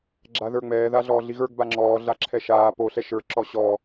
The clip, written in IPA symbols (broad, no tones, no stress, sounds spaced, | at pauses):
ɡ͡ǁ a ð ə˞ ŋ͡m ɛː ð a ɮ ɔː ɮ i ɣ ə˞ ɡ b a ŋ͡ǁ ɔː ɮ a ǁʰ ɛ ʃ aː p o ɬ ɛ ʃ ə˞ ǁ ɔ ɕ ɔ